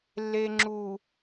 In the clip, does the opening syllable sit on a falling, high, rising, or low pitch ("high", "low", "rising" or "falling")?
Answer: low